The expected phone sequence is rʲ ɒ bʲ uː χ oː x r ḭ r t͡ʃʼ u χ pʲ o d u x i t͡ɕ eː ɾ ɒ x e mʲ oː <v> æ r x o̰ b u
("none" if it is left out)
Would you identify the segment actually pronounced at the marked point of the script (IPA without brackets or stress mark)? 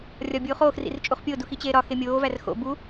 v